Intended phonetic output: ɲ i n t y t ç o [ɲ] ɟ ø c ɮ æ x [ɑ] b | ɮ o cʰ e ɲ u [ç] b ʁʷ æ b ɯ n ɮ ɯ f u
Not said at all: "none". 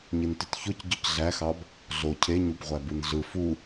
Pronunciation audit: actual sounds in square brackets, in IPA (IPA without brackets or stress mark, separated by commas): c, ɑ, none